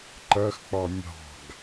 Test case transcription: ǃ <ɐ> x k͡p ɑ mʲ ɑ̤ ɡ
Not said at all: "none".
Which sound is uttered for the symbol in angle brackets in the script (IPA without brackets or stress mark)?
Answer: ɐ